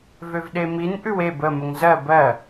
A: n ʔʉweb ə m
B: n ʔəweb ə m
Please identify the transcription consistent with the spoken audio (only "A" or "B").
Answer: A